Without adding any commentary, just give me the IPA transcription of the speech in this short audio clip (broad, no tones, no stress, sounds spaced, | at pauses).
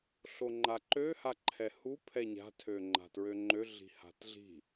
ɬ o ŋ͡ǃ a ǃ ø h a ǃʰ ɛ h u pʰ ɛ ɲ a̤ tʰ ø ŋ͡ǃ a̤ t ɹ ø ŋ͡ǃ ø ɮ i̤ h a̤ t ɮ i̤